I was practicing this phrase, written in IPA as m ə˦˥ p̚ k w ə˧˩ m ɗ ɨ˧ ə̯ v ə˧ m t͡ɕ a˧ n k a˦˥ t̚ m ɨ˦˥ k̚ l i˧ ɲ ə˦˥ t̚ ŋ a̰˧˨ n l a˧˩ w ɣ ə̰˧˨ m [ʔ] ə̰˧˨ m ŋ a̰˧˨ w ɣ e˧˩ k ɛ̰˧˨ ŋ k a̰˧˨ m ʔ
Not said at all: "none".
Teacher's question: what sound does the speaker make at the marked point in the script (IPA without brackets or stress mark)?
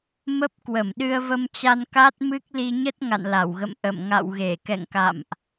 ʔ